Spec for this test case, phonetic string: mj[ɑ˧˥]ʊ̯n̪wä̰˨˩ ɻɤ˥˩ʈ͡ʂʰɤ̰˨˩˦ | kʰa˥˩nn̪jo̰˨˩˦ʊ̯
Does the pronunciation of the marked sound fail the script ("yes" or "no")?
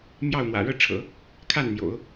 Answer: yes